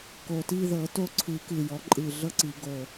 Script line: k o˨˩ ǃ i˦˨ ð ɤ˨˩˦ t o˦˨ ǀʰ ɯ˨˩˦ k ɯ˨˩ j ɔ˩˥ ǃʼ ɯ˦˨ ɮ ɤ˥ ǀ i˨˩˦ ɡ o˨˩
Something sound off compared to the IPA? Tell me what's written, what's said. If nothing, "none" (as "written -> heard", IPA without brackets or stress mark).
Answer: ǃ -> t